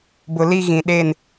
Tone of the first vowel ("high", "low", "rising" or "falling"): low